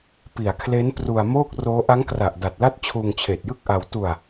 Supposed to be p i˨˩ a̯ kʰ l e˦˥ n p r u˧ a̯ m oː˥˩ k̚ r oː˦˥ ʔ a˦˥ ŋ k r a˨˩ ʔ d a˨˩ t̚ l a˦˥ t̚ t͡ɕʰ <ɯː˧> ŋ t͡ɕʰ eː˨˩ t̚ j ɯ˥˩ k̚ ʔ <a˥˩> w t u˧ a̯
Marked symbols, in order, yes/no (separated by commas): no, no